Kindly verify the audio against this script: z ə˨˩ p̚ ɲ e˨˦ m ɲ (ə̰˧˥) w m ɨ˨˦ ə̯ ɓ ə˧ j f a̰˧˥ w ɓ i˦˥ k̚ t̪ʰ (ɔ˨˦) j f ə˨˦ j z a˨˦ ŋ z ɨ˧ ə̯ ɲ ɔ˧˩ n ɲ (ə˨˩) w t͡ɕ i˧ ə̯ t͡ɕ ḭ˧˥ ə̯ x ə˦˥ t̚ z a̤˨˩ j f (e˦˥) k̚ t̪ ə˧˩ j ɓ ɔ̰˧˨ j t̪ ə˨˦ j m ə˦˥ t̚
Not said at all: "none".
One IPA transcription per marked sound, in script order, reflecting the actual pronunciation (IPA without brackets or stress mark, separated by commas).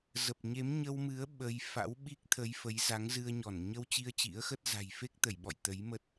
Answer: ə˧, ə˨˦, ə˧, e˦˥